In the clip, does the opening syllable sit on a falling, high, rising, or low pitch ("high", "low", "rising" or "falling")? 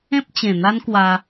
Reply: high